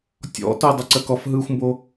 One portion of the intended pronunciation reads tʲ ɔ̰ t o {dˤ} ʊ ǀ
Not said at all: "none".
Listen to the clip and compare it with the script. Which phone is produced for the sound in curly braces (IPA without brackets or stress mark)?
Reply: dˤ